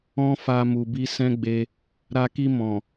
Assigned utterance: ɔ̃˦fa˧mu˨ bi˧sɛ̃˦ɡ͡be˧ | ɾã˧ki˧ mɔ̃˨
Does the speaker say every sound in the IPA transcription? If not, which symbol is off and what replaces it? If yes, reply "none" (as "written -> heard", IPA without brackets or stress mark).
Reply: ã˧ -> a˧